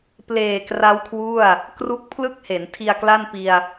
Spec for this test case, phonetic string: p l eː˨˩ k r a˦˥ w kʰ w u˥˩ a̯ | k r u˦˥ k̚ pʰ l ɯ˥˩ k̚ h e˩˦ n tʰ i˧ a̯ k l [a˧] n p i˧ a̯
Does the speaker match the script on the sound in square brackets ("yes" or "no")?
no